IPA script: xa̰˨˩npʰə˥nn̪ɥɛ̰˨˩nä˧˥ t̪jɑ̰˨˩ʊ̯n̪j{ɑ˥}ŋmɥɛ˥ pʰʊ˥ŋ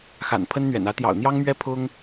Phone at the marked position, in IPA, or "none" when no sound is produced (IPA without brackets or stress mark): ɑ˥